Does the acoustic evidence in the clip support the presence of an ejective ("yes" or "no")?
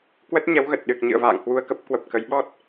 no